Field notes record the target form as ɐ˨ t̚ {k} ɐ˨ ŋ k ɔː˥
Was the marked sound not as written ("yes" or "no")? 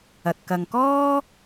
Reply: no